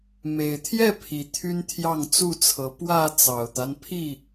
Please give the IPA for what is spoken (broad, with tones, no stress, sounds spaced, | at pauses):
m e˨˩ ɪ̯ t̪ʰ j ɛ˥˨ pʰ i˨˩ t̪ʰ y˦ n t̪ʰ j ɑ˥˨ ŋ t͡s u˥˨ t͡sʰ ɤ˨˦ p w ä˥˨ t͡s ɑ˨˩ ʊ̯ t̪ a˦ n pʰ i˥˨